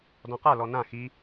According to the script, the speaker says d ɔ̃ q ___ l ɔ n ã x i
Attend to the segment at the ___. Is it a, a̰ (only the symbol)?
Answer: a